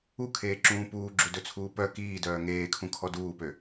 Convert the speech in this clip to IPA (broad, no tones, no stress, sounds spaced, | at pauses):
u kʰ eː ǁ ũː p uː ɡ͡ǁ u d ɵ t͡sʰ uː p œ k iː d œː ŋ eː kʰ ũ kʰ ɔ d uː p ø